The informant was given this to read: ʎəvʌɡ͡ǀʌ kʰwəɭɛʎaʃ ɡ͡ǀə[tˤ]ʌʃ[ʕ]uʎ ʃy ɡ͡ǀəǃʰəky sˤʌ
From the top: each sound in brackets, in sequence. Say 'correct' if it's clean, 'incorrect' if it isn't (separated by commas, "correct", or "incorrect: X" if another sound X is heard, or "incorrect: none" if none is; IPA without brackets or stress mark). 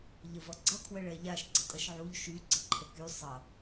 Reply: incorrect: tʼ, correct